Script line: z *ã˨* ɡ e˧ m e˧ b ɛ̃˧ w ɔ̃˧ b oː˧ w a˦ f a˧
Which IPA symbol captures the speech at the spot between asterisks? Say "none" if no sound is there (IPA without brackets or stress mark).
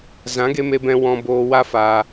ã˨˦